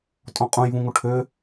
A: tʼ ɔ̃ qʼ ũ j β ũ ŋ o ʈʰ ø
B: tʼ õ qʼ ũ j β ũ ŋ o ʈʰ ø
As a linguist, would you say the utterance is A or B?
A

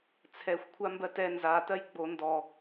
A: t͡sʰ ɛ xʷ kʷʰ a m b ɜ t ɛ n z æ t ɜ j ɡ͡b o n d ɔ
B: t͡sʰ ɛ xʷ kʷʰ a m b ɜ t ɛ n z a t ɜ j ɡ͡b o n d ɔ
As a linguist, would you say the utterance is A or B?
B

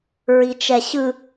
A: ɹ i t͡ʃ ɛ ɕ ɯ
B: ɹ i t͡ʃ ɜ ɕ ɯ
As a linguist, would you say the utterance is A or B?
A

